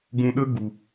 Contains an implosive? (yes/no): yes